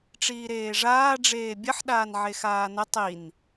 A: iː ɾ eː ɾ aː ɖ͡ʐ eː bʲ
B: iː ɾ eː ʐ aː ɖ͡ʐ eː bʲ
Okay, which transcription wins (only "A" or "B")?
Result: B